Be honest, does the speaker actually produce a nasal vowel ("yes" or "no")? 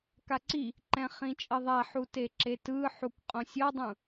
yes